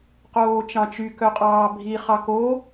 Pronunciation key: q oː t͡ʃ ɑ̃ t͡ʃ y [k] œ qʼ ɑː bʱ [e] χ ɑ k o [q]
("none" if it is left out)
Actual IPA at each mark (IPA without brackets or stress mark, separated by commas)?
k, i, none